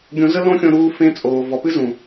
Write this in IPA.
ɡʲ õ˧ z ə˦ l õ˦ xʲ õ˧ ɾ uː˧ f ẽ˧ t͡sʼ oː˨ v ɔ˨ p ɨ˦ z ũ˨

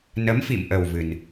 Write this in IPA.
n ə˨˦ m f ḭ˧˨ m ʔ ə˨˩ w v ɨ˨˩ n

